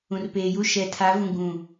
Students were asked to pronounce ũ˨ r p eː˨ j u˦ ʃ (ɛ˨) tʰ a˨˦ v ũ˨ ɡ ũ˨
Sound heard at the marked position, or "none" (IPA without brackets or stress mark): ɛ˨